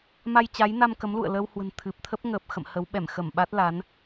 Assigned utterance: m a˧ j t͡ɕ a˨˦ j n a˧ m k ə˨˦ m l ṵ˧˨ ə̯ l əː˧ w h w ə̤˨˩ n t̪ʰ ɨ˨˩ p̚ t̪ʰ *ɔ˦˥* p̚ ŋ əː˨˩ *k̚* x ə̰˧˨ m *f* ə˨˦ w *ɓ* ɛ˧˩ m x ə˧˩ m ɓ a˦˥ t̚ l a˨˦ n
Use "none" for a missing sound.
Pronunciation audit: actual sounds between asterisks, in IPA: ə˦˥, p̚, h, ɓ

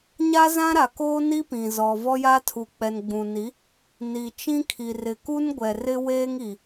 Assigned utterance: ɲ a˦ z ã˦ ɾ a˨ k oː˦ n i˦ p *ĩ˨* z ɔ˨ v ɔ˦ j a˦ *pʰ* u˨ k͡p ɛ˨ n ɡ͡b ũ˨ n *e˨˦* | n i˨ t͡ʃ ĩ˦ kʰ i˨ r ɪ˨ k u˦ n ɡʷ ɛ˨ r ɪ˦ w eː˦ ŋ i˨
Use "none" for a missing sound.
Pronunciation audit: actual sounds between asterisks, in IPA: ĩ˨, tʰ, i˨˦

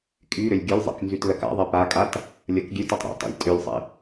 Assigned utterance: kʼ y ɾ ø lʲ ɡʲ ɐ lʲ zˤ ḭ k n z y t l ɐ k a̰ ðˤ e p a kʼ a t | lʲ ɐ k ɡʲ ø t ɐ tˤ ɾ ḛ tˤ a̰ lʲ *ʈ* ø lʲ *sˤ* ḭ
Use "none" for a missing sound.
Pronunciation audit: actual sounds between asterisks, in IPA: tʼ, sˤ

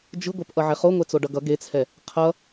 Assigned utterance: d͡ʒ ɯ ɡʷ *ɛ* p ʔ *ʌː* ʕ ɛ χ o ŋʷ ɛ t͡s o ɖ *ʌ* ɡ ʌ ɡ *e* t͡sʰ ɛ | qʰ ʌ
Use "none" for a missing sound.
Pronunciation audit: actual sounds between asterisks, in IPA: ɛ, ʌ, ʌ, e

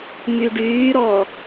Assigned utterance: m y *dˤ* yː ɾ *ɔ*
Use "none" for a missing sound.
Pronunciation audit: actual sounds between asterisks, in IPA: ɖ, ɔ

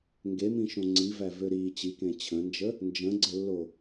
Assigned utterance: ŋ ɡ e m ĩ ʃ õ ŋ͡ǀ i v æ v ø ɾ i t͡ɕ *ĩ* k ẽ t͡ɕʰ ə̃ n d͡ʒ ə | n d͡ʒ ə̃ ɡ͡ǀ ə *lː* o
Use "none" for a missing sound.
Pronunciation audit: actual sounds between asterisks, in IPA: i, lː

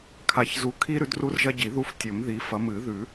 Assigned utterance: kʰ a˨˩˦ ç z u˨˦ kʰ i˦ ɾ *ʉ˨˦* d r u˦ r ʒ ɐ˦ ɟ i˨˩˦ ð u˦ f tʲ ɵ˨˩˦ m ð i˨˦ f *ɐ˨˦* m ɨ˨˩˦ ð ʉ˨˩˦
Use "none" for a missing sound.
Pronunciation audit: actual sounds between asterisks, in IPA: ʉ˨˦, ɐ˨˦

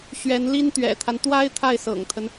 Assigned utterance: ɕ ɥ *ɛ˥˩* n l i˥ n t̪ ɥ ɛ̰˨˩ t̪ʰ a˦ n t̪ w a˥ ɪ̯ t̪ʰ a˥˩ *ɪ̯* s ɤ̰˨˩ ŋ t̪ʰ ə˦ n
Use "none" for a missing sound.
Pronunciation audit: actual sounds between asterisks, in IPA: ɛ˧˥, ɪ̯

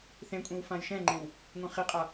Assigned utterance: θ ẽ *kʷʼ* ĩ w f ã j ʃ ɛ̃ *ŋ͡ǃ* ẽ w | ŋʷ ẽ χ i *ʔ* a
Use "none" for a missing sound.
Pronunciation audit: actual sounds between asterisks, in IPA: kʷʼ, ŋ͡ǃ, qʼ

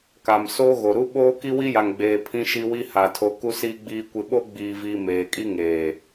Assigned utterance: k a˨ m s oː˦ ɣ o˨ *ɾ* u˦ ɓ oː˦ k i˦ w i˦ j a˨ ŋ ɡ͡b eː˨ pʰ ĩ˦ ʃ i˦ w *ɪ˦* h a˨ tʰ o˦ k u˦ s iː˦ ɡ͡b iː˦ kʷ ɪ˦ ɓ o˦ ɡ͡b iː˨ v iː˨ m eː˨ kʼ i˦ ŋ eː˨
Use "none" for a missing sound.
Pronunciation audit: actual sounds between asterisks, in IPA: ɾ, i˦

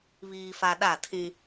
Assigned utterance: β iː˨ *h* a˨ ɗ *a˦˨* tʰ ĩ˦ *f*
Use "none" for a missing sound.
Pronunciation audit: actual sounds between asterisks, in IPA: f, a˦˨, none

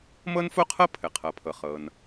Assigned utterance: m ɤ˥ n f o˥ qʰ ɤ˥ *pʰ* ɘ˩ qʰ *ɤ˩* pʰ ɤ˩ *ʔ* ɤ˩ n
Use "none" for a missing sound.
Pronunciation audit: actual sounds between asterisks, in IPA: pʰ, ɤ˩, χ

